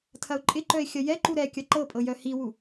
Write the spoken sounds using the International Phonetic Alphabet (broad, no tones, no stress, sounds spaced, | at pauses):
tʰ ɐ ʊ̯ ǃʼ ɪ ǃ œ ɪ̯ xʲ ɐ j ɛ ǃ u ɾ ɛ kʲ ɐ ǃ ɤ pʼ ɤ j œ h i w u